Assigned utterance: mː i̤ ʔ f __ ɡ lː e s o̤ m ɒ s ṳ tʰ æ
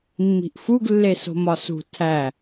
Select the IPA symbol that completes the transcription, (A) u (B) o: A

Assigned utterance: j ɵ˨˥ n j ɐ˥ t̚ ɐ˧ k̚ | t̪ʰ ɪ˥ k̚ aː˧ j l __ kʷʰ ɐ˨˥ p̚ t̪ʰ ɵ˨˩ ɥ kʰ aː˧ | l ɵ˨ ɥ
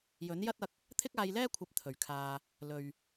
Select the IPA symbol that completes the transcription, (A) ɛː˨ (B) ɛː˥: B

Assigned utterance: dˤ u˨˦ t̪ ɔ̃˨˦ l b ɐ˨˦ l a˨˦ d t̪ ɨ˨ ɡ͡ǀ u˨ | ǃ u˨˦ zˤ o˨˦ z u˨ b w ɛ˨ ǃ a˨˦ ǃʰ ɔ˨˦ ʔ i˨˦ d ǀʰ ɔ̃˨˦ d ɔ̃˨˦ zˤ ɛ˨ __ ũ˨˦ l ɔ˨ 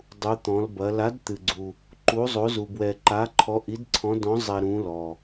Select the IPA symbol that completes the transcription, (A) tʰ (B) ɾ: B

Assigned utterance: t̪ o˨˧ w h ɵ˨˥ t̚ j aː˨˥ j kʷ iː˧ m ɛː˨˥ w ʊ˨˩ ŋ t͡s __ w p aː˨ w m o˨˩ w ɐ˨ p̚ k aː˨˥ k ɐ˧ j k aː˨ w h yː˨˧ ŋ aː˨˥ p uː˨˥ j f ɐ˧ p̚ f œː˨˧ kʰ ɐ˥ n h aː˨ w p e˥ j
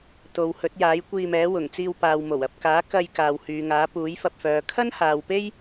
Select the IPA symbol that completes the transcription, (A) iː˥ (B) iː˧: B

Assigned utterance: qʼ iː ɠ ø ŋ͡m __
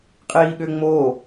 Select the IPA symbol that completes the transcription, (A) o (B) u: A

